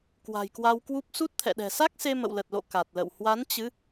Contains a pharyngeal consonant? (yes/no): no